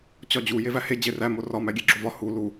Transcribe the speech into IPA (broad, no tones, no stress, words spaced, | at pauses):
t͡ɕɒd͡ʑu jevæhe d͡ʑeræ morɒ mæɡʲeɡ͡ǁovɒ hu lu